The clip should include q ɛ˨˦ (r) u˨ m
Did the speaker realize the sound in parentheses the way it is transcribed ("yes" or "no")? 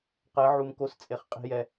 no